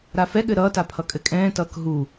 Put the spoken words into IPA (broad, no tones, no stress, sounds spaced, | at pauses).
ɾ a f ɛ ɠ ɘ ɾ ʌː t a pʰ ʌ kʼ ɘ kʼ ɛ̃ː t ʌː k ɦ u